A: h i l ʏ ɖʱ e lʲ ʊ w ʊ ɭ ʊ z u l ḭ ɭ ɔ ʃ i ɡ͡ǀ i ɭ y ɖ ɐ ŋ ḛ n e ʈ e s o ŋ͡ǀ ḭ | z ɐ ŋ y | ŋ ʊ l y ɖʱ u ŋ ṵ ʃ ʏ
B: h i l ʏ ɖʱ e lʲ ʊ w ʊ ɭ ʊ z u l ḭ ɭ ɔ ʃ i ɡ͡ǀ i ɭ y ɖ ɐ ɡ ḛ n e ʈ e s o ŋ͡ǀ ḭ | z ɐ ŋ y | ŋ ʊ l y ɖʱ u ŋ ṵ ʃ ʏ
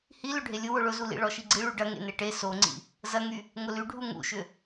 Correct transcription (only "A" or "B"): A